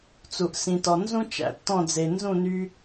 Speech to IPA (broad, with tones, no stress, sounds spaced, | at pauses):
t͡s u˨ ʔ s ĩ˨ t ɔ˨ n z ũ˦ t͡ʃ æ̰˧ tː ɔ̃˦˨ d͡z e˨ n z ũ˦˨ n y˧